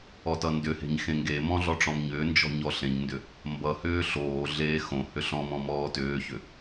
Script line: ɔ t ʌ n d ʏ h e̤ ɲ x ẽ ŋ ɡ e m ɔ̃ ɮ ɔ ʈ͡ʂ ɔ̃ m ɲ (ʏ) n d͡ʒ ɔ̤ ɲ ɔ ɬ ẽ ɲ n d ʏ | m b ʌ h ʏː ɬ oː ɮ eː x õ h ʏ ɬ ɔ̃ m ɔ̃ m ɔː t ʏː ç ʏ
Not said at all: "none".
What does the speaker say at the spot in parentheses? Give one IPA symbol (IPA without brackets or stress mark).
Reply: ʏː